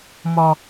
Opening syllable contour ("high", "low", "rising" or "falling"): low